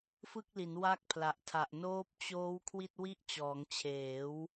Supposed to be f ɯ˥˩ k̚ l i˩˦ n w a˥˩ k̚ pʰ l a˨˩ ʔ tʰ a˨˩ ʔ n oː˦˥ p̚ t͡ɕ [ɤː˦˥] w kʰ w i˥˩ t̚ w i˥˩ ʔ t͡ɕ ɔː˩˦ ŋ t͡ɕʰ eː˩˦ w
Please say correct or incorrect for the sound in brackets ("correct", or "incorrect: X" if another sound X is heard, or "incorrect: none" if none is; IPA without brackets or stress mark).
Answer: incorrect: oː˦˥